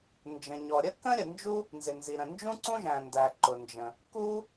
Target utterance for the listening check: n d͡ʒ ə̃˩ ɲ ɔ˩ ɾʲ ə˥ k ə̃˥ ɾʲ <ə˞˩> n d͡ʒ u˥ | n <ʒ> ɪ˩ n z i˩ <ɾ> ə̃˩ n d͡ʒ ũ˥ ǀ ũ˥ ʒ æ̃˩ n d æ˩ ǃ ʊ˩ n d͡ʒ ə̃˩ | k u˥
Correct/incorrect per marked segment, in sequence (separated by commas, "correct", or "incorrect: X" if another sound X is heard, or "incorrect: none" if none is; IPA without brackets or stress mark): incorrect: ə˩, incorrect: z, correct